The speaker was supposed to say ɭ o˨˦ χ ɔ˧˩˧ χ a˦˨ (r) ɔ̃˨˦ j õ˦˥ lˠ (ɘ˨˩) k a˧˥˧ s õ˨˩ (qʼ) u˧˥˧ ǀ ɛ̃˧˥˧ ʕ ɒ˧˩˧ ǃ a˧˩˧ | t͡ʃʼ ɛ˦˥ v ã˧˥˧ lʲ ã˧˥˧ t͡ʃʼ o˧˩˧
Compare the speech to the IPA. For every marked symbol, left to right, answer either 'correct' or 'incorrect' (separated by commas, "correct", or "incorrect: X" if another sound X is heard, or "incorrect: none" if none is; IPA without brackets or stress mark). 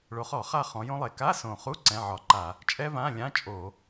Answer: incorrect: χ, incorrect: e˨˩, incorrect: χ